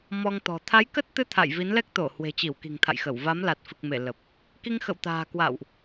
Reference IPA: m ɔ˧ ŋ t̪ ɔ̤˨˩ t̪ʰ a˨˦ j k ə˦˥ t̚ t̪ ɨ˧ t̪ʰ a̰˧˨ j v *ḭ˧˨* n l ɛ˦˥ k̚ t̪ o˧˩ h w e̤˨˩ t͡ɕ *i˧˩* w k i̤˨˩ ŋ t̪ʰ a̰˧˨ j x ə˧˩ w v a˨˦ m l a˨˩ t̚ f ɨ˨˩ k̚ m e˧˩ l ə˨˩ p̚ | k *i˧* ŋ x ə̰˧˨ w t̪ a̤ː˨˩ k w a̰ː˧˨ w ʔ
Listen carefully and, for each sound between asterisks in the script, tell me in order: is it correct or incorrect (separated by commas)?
incorrect, correct, correct